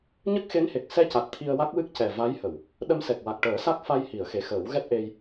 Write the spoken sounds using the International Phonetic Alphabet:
ɲ ə˦˥ k̚ x e˧˥ n h e˨˩ k̚ s ɛ˧ c a˨˩ t̚ t̪ʰ i˧ ə̯ w a˦˥ k̚ w ɨ˦˥ k̚ c ɛ˨˩ v a˧˥ j h ə˨˩˨ w | ɗ ə˧ m s ɛ˨˩ k̚ w a˨˩ k̚ ʈ əː˨˩˦ s a˦˥ k̚ f a˧ j h i˨˩˨ ə̯ x e˨˩ x əː˨˩˦ w ɣ ɛ˦˥ t̚ ʔ e˧ j

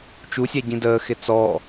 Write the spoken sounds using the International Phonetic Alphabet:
t͡ʃ u sʲ æ ɟ ĩ d əː x ɪ t͡s ɔː

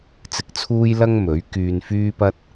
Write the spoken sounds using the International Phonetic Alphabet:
t͡s ɪ˧ k̚ t͡sʰ uː˥ j l ɐ˥ ŋ m ɵ˨˥ ɥ k yː˧ n f yː˥ p ɐ˥ t̚

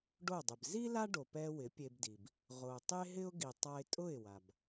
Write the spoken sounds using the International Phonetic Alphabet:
ɖ o˥˩ dˤ ɪ˩ b z i˥ l a˥ ɖ o˩ p ɛ˧ w ɪ˩˥ pʲ e˧ b d i˩ b | ʁ o˩ tˤ e˥ ɦ ɪ˥ ʊ̯ ɡ i˩ tˤ a˧ ɪ̯ tʼ ʊ˥˩ ɪ̯ w a˩ b

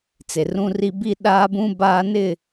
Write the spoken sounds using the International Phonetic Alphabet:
t͡s e˨ r ũ˦ r i˦ b i˦ ɗ aː˦ b ũ˦ b aː˦ n ɪ˦˨

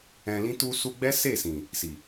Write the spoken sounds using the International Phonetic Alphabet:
ɛ̃˨ l ĩ˧ t u˧ s u˧ ɡ͡b ɛ˦ s e˦˨ s ĩ˨ | s i˨

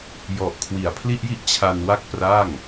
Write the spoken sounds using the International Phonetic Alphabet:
j ɔ˨˩ ʔ kʰ w i˨˩ a̯ pʰ l i˥˩ ʔ j i˥˩ ʔ t͡ɕʰ a˧ n w a˥˩ k̚ p r a˥˩ ŋ

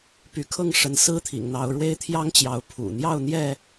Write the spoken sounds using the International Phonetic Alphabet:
p y˨˦ kʰ ɤ˥˨ ŋ ʂ ə˨˦ n s ɹ̩˦ t̪ʰ ḭ˨˩ ŋ n̪ ɑ˨˦ ʊ̯ ɻ w e˦ ɪ̯ t̪ʰ j ɑ˦ ŋ t͡ɕ j ɑ˨˦ ʊ̯ pʰ ṵ˨˩ n̪ j ɑ˥˨ ʊ̯ n̪ j ɛ˥˨

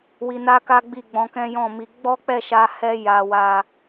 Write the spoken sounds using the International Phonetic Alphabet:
w i˧ n a˦ k a˦ ɡ͡b i˦˨ ɡ͡b ɔ̃˧ k ɛ̃˦ j ɔ̃˦˨ m i˧ ɡ͡b ɔ˦ k͡p ɛ˦˨ ʃ a˧ h ɛ˦ j a˧ w a˦

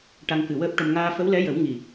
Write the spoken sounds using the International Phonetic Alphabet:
ʈ a˧ ŋ k ɨ˨˩ w əː˦˥ p̚ ʈ ə˧ m ŋ aː˧ f ə˧˥ w l ɛ˧˥ j ə˨˩˦ w ŋ i˨˩

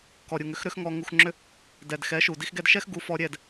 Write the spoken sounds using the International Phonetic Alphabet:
k ɔ˨ ɾʲ u˨ ŋ ʏ˨˦ x ɾ ʏ˦ x ŋ ɔ˧ ŋ u˧ x ŋ͡ǁ ʏ˦ | d ɛ˨ d x ɛ˨˦ ʃ u˨ d i˧ x ɡ ɛ˧ d ʃ ɛ˦ x ɡ u˨˦ f ɔ˧ ɾʲ ɛ˦˨ d

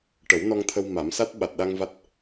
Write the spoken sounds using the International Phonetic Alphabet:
ʈ ə˨˩˦ w n ɔ˧ ŋ t̪ʰ ə˧ w m a˨˩˦ m s a˦˥ t̚ ɓ a˨˩ t̚ ɗ a˧ ŋ v a˦˥ t̚

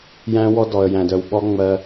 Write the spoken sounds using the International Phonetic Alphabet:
j æ̃˦ w ɔ˦ d ɔ˨ ə̯ j æ̃˨ d œ˨ w ɓ ɔ˦ ŋ͡m ɜ˦

